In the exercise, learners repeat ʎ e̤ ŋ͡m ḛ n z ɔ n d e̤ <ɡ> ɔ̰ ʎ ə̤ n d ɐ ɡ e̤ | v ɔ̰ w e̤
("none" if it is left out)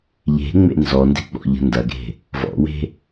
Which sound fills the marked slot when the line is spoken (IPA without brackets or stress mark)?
ɡ͡b